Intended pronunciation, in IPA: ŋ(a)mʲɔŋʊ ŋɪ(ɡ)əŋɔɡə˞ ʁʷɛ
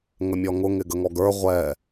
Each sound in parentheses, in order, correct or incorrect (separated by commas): incorrect, correct